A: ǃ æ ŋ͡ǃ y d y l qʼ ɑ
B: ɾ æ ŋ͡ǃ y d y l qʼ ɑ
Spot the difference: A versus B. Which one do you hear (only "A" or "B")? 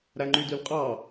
B